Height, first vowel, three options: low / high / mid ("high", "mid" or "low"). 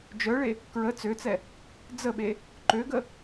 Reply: mid